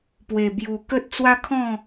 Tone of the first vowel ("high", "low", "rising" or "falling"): low